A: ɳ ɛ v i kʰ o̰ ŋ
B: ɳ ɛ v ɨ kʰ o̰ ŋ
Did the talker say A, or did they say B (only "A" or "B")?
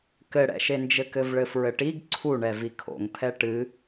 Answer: A